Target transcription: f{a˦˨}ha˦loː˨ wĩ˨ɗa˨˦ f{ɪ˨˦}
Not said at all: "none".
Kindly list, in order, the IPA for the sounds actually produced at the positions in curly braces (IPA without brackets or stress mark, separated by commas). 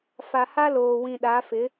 a˨, ɪ˨˦